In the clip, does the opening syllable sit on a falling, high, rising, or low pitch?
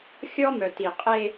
high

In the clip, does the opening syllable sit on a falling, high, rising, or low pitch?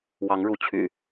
rising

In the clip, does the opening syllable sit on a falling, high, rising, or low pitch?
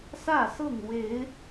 falling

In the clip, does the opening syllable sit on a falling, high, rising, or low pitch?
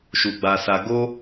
low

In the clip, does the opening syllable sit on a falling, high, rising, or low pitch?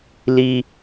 high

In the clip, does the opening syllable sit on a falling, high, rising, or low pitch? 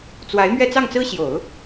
rising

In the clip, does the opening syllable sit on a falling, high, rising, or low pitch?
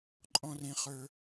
high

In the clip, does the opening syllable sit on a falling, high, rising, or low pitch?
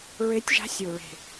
rising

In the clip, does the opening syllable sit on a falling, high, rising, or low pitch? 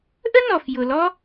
high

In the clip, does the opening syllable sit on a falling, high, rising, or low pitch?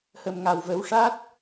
low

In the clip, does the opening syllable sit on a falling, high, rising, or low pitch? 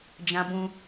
high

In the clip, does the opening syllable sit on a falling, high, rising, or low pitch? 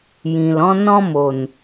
low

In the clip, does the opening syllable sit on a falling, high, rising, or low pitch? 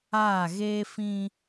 falling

